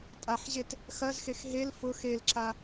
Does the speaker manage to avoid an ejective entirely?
no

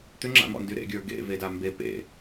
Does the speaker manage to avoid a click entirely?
no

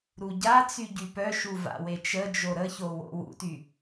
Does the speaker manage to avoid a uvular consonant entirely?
yes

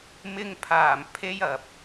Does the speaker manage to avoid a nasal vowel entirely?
yes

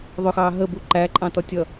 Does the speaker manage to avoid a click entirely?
no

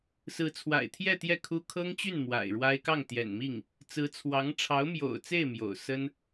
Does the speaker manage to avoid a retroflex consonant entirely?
no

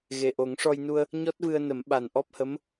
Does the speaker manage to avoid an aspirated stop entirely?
yes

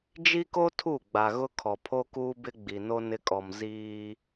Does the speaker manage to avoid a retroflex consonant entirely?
yes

